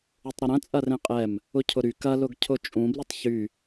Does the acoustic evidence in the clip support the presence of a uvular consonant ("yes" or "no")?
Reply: yes